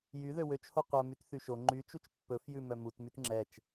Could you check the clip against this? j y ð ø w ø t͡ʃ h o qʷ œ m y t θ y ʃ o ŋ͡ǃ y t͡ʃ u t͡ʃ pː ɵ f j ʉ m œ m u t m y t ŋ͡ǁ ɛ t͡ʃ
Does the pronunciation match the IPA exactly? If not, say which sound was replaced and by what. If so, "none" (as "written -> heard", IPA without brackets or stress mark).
none